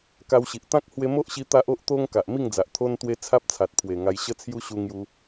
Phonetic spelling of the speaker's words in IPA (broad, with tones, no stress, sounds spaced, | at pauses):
k a˧ w ɕ i˨ ʔ t̪ ã˦ k̚ h w e˧ m o˦ ʔ ɕ i˧ t̪ a˦ ʔ o˦ ʔ t̪ o˦ ŋ k a˨ ʔ m i˥˧ ŋ d͡z a˨ ʔ t̪ʰ o˧ n t̪ w e˧ t͡sʰ a˦ p̚ t͡sʰ a˨ t̚ pʰ w e˨˩ ŋ a˧ j ɕ ə˦ t͡sʰ j u˦ ɕ u˧ ŋ j u˧